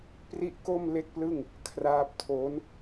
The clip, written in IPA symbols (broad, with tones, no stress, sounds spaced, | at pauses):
p r i˥˩ ʔ k o˥˩ m l e˥˩ k̚ p l ɯ˥˩ ŋ | kʰ r aː˦˥ p̚ tʰ o˦˥ n